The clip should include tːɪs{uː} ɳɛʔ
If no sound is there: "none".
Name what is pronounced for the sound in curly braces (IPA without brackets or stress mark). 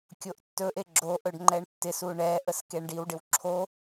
u